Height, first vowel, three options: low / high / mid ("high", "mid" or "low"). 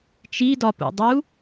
high